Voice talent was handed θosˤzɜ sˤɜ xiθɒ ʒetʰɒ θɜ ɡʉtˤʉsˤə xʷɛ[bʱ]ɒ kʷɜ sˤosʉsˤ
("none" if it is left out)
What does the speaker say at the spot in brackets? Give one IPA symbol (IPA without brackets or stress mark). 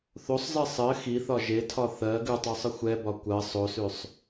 b